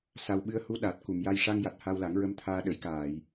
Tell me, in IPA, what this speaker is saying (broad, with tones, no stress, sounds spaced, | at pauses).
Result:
s a˨˩ w ɓ ɨ˧ ə̯ h u˧˥ ɗ a˨˩ t̚ k u˨˩˨ m j a˧ j ʂ a˧ ŋ j a˨˩ t̚ h a˧ w l a˨˩˦ ŋ ɹ ə˧˥ m t̪ʰ aː˧ ɗ ə˨˩˦ j k aː˨˩˨ j